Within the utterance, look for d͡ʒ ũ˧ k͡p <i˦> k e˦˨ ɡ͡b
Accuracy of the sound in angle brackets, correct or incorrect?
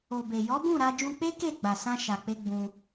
incorrect